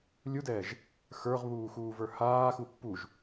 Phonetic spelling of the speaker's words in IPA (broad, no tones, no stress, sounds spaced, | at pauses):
lʲ u d ɛː ʒ | x ə˞ ʁ β uː x uː v ə˞ h aː x u pː u ʒ